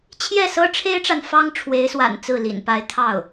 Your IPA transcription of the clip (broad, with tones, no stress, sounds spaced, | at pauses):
t͡ɕʰ j ɛ˥˩ s ɤ˥ ʈ͡ʂʰ e˥ ɪ̯ ʈ͡ʂ a˨ n f ɑ˥ ŋ ʈ͡ʂʰ w e˧˥ ɪ̯ s w a̰˨˩ n t͡s ɹ̩˥˩ l ḭ˨˩ n p a˥ ɪ̯ t̪ʰ ɑ˥˩ ʊ̯